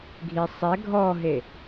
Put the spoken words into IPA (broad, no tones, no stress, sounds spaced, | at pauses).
ɡʱ i sˤ ɛ ɡʱ ɔ ɦ e